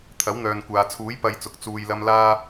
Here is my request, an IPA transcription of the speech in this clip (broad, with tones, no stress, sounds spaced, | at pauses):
t̪ʰ ɐ˨˥ w n̪ œː˨ n kʷ aː˨ t͡sʰ uː˨˥ j p ɐ˧ j t͡s ʊ˨ k̚ t͡s uː˨ j l ɐ˧ m l aː˧